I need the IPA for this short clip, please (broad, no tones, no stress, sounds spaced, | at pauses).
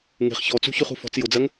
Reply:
ŋ e̤ χ ç ɔ t͡s ṳ ç ʉ χ ṳ f ɔ̤ t͡s j ʊ d͡z ɜ ŋ